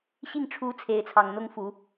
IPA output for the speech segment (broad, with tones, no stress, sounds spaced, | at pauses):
ɕ i˥˩ ŋ ʈ͡ʂʰ u˧˥ t͡sʰ e˧˥ ɪ̯ t͡sʰ ɑ˨˩ ŋ n̪ ʊ˥ ŋ f u˨˩˦